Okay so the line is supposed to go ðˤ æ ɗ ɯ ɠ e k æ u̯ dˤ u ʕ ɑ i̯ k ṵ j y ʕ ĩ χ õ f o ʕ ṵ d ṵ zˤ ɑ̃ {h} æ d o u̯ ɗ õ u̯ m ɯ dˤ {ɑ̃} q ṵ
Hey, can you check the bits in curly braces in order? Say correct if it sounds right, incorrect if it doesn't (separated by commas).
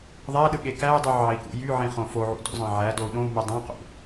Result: incorrect, correct